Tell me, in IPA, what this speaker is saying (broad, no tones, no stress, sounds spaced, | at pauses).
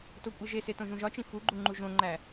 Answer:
t o kʷʼ i ʒ e s e t õ ʒ ũ ʒ ɒ t͡ʃ ĩ f u ɡ͡ǃ u ŋ͡ǃ u ʒ õ ŋ͡ǃ æ